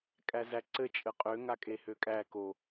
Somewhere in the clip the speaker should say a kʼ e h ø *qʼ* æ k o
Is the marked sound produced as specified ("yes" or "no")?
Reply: no